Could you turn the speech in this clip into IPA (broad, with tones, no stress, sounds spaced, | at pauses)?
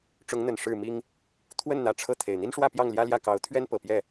ʈ͡ʂ ʊ˨˦ ŋ n̪ ə˨˩ n ʂ ɻ̩˥˨ m i˦ ŋ | t̪ʰ w ə˥˨ n n̪ ä˨˦ ʈ͡ʂʰ ɤ˥˨ t̪ʰ e˨˩ ɪ̯ n̪ i˦ n ʂ w ä˥˨ p j ɑ˥˨ ŋ l j ä˦ l j ä˥˨ k ɑ˨˦ ʊ̯ t̪ʰ ɥ ɛ˦ n p ɤ˨˩ p j ɛ˥˨